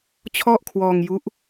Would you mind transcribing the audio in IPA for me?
t͡ɕʰ ɔ˥˩ ʔ kʰ w ɔː˧ ŋ j u˦˥ ʔ

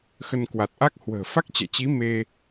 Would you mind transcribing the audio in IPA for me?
x ə˧ n k w a˨˩ t̚ ʔ a˦˥ k̚ h w ə̤ː˨˩ f a˦˥ k̚ t͡ɕ ɛ̰˧˨ t͡ɕ i˨˦ m e˧

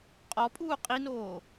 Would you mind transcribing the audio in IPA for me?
qʼ ɔ pʼ uː qʼ i n oː

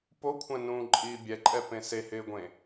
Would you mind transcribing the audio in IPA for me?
p o kʷʰ ɛ̃ n ũː ǃʼ iː bʲ ɛ ǃʼ ɛ p ẽ s e h ɪː ɡʷ ẽ

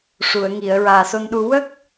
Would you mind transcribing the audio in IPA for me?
ʂ u˨˩˨ ə̯ ŋ i˨˩˨ ə̯ ɹ aː˨˩ s o˧ n ɗ u˧ w ə˦˥ k̚

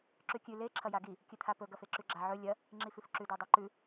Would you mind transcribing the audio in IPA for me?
ǁ ʉ kʲ ʉ l e ǁʰ ɐ j a ɡ i | kʲ ɨ t̪ʰ a p ɵ ɡ ɐ f e ǁ ʉ ɡ͡ǁ a ʕ ɵ lʲ ɐ | ŋ͡ǁ i f ʉ f ǁ ʉ d o dˤ a ǃ ʉ

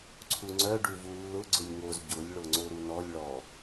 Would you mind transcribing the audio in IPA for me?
ǀʰ u ŋ͡ǀ œ ɖ u v u lː ʊ ɡ͡ǀ ʊ lʲ ŋ o z ɟ ʊ lʲ ɭ o ŋ͡ǀ o ɾ u n ɔ lʲ ɭ ɔ

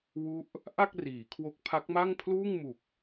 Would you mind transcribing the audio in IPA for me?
w u˥˩ ʔ | ʔ a˥˩ k̚ r iː˩˦ kʰ w o˦˥ k̚ pʰ a˦˥ k̚ m a˥˩ ŋ pʰ l uː˥˩ ŋ m u˨˩ k̚

